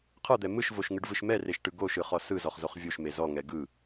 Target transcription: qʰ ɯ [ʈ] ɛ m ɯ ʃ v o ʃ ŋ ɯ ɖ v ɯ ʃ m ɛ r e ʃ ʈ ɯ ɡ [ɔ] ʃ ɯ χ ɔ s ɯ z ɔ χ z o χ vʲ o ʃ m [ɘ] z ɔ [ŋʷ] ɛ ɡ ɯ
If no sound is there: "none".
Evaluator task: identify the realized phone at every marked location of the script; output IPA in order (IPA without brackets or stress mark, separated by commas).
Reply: d̪, o, e, ŋ